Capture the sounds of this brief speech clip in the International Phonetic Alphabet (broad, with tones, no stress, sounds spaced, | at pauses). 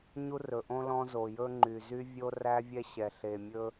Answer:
ɲ u˦ r ɵ˨ ʔ õ˦ l ɔ̃˦ z o˨ j ɵ˦ ŋ͡ǃ y˨ z y˦ vʲ o˦ r æ˦ vʲ ɛ˦ ɕ ɛ˨ ɬ e˨ mʲ ɵ˦